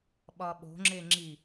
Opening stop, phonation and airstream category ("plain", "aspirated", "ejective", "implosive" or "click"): implosive